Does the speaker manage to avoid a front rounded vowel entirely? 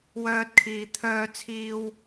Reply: no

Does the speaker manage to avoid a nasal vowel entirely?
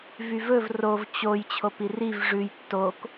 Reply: yes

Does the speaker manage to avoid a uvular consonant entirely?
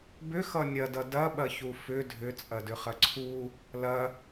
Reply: no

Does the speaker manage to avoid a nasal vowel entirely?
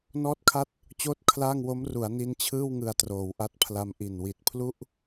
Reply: yes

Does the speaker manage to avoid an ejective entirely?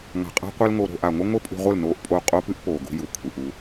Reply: no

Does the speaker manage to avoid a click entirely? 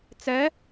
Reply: yes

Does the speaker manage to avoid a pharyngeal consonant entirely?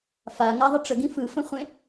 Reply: yes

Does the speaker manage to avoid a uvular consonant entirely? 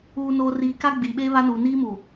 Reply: yes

